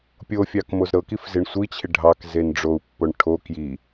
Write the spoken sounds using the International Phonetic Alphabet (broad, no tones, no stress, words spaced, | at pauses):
pʲofʲɑk mozɾɤkif zɪɳsʷit͡ɕʰɪ ɖʱɑkzen ɖ͡ʐou̯pːoɳ ʈʰo kji